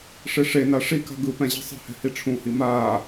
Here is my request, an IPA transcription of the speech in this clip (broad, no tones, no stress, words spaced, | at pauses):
ʂeʂena ʂika̤ ɡɯpɛ̃ ʑi̤sˤe̤hɛ̤ hiʈ͡ʂʰũhi maː